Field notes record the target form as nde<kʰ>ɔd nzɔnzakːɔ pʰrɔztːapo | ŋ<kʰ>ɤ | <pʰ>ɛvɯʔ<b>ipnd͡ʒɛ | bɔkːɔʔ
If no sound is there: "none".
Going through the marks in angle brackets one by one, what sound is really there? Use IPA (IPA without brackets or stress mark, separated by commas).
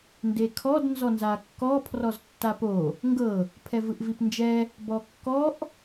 kʰ, ɡ, pʰ, v